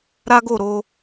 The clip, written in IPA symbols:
ɾa˦ɡo˦˨ ɾo˧

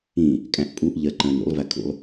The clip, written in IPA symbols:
ĩ | kʼæ̃ʔpʼuʔ ʎɜǃə̃ːnɾṵlˠ vækʰṵlˠ

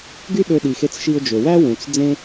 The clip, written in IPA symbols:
ɡy˥ ɗø˧ɗi˩xe˧t͡s ʃi˧ʊ̯d͡ʒø˩wæ˥ wũ˩t͡s d͡zẽ˥

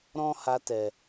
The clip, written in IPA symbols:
ɾɔ̃˦ ha˧tɛ˨

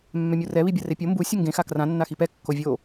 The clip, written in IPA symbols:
mːɛmʲurɛ βibʲarepʲo mbu sʲuŋɡẽ xakrã nːaxipɛ kːovʲo

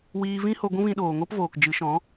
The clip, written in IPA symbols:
wiː˧vĩ˦ho˧ ɡʷũ˦vĩ˧ɗoː˨ŋo˦p voː˨kd͡ʒɨ˨˦ʃɔ̃˨˦

